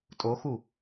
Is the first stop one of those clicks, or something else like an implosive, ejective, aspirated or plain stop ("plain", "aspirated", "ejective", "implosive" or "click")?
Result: ejective